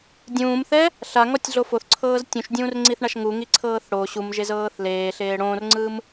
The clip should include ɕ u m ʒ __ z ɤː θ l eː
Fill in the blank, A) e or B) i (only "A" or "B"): A